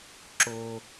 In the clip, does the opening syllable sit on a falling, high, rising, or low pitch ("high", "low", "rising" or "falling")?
high